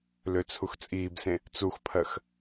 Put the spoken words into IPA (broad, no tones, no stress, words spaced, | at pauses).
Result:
løt͡sʰuxt͡sʼiːbsẽ | t͡suxpʰɜx